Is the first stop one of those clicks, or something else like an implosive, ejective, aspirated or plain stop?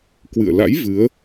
plain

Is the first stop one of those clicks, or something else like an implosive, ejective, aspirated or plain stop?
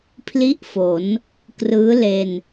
aspirated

